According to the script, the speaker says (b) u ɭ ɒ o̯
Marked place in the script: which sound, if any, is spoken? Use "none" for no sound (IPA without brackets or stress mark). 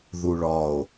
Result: ð